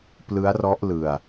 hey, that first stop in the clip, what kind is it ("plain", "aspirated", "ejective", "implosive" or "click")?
plain